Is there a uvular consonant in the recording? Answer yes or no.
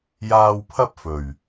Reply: no